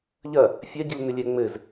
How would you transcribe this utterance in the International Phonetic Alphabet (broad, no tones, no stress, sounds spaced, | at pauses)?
ʎ ɐ | fʲ a ɟ i l n ɘ lʲ ɛ ŋ͡m ɘ z